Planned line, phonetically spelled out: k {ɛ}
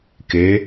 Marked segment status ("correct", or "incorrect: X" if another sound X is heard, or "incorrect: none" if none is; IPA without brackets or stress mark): incorrect: e